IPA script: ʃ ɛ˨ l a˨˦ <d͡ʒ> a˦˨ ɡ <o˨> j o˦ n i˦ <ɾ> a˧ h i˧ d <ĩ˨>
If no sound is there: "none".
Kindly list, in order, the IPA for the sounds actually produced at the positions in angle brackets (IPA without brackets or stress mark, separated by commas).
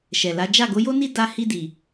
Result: d͡ʒ, o˨˦, d, i˨